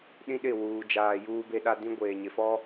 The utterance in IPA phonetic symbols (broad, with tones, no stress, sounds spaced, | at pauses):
ɗ ĩ˦ ɗ ɪ˦˨ w uː˨ d͡ʒ aː˨ j uː˦ b e˦ ɗ a˦ d ĩ˦ ɡʷ eː˨ ɲ ɪ˨ f ɔ˦